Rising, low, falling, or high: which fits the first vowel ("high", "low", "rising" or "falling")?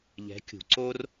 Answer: rising